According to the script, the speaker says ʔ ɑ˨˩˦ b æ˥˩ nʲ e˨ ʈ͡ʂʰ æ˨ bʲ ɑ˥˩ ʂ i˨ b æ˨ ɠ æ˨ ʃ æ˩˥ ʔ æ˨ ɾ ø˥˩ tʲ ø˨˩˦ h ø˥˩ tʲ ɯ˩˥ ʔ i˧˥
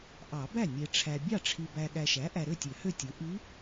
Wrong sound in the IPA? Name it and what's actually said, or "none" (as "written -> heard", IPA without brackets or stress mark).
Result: ʂ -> ʈ͡ʂʰ